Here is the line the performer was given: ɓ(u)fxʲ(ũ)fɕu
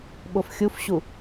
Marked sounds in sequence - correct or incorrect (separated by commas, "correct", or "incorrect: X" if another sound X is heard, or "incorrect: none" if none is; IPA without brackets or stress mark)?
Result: incorrect: o, incorrect: u